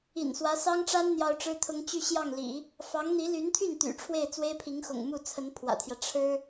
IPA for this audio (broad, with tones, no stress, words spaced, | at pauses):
ḭ˨˩nswä˧˥sɑ˥ŋʈ͡ʂa˥n n̪jɑ˥ʊ̯ʈ͡ʂɻ̩˥t̪ʰʊ˥ŋ t͡ɕy˥˧ɕjɑ˥˩ŋlḭ˨˩˦ | fɑ˧˥ŋn̪i˧˥ly˧˥nt̪ʰy˥˩n t̪y̰˨˩ ʈ͡ʂʰwe˥˩ɪ̯t͡swe˥ɪ̯pʰi˧˥ŋxʊ̰˨˩ŋ mu˥˩ t͡sʰə˧˥npʰwä̰˨˩t̪ʰjä˦ ʈ͡ʂʰɻ̩˥